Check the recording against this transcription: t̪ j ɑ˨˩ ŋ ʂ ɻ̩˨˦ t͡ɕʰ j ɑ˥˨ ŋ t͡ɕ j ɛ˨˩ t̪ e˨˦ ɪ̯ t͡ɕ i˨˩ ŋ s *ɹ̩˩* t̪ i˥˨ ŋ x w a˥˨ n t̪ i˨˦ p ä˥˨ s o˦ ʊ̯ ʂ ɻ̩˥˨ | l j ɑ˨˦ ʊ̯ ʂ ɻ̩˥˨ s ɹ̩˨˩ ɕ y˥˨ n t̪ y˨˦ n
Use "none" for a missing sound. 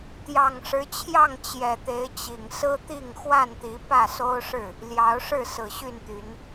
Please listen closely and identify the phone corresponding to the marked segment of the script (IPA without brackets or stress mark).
ɹ̩˦